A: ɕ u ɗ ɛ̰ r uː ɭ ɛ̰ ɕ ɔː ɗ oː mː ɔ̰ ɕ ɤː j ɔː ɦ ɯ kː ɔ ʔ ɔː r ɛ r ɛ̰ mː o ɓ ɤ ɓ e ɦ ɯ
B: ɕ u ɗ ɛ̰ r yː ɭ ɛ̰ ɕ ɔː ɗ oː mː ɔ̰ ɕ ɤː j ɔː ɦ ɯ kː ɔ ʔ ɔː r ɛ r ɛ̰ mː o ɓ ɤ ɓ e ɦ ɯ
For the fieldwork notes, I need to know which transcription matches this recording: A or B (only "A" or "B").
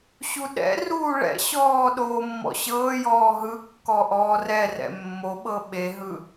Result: A